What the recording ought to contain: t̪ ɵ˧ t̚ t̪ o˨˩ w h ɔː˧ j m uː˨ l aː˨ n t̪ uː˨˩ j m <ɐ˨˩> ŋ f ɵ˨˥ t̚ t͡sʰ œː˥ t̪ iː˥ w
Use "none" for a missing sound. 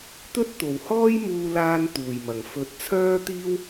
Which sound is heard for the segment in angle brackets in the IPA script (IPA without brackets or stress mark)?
ɐ˨˩